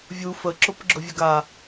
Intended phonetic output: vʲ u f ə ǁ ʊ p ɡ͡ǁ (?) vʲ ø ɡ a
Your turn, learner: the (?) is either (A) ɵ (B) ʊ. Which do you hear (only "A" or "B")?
B